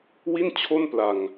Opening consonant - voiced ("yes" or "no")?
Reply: yes